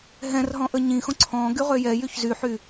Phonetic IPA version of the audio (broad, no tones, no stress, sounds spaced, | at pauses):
ɦ ɛ̃ r ɦ ɔ̃ ʔ ə ɲ ĩ x õ ǀʰ ɔ̃ ɡ y ʁ ø j ɛ j y ç z y ħ y